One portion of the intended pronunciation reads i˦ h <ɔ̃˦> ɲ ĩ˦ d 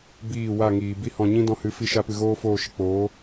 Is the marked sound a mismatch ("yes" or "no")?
yes